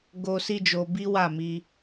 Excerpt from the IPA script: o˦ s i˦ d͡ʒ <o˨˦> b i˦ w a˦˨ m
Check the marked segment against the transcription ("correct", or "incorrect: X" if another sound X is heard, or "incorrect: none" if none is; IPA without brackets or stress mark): incorrect: o˧